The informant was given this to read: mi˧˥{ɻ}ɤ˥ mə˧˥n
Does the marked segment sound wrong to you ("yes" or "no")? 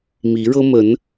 no